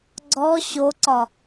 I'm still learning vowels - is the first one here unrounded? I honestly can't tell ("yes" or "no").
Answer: no